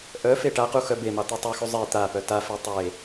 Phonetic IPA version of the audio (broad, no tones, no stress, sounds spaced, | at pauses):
ʔ œ f e ʈ a q u x œ b e m ɑ t̪ u tˤ u x u zˤ e t̪ a p œ t a f e tˤ e